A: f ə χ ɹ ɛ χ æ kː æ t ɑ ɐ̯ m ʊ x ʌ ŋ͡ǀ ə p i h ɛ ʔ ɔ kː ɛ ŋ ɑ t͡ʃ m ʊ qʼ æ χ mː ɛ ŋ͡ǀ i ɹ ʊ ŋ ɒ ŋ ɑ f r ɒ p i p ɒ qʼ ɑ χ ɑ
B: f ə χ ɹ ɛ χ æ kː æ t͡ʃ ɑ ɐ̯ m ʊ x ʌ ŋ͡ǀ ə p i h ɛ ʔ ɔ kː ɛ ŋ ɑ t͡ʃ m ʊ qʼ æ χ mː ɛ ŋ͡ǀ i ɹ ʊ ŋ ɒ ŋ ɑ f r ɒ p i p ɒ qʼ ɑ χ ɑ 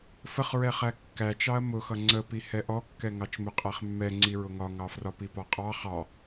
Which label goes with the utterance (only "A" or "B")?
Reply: B